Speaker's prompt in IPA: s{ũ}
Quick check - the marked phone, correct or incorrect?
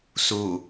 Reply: incorrect